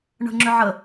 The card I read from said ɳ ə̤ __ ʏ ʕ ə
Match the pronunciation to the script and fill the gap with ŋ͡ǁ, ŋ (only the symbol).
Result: ŋ͡ǁ